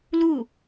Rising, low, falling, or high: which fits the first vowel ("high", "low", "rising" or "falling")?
falling